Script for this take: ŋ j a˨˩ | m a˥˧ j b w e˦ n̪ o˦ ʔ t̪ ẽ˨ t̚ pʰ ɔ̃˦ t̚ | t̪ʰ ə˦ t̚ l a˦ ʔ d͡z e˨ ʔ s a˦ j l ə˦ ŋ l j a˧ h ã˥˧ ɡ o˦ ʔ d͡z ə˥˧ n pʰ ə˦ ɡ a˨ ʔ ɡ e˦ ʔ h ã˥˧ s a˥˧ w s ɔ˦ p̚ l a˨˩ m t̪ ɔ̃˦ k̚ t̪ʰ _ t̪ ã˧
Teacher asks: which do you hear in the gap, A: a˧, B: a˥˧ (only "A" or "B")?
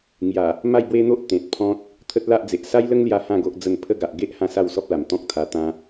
A